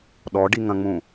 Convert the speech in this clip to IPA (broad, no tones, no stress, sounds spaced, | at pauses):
ɗ ɔ ɖ i ŋ ɐ̃ ŋ͡m ũ